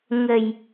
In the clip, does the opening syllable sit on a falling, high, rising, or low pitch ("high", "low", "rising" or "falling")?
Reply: low